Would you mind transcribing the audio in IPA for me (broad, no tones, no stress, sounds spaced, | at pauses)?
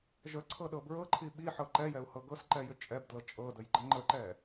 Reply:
ʒ ə ǀʰ ɤ ɗ ɤ b ɹ ɤ ǃʰ i ɓ i ħ ɤ ǃ ɛ j ɛ u̯ h ɤ ɡ ɤ s ǃ ɛ j ʏ t͡ʃʼ ɛ b d l ɤ t͡ʃʼ ɤ d ə j ɡ͡ǃ ə ŋ͡ǃ ə ǃ ɛ